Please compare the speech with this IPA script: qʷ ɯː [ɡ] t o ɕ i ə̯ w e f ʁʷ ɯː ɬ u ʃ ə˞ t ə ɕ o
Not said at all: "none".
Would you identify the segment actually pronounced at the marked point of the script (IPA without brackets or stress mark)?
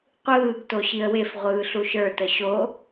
ɡ